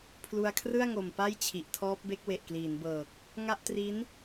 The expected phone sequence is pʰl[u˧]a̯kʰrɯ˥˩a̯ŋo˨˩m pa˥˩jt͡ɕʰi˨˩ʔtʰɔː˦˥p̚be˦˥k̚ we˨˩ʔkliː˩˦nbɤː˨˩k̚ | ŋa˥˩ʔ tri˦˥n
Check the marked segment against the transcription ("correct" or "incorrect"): correct